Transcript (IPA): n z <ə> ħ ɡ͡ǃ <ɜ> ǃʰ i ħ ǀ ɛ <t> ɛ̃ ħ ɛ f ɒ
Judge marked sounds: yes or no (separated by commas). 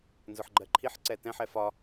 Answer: no, yes, yes